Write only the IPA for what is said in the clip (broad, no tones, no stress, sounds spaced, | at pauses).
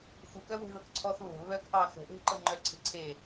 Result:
x u k œ w e̤ ð ɤ k ǀʰ ɔ θ β ə̤ β œ k ʔ ɑ x ə̤ ʔ e̤ ǃ ɤ ŋ͡ǃ œ ǀʰ e̤ ǀʰ e